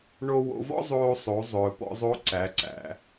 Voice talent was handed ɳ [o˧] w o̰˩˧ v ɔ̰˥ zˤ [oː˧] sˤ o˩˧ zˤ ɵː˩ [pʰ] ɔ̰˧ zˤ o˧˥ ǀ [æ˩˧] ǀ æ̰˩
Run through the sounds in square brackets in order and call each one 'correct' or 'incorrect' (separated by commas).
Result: correct, correct, incorrect, correct